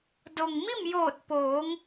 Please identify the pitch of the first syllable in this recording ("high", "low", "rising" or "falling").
low